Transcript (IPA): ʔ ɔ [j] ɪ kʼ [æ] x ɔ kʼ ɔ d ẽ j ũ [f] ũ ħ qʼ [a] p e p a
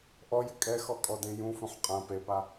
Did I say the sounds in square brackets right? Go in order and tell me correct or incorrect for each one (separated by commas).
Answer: correct, incorrect, correct, incorrect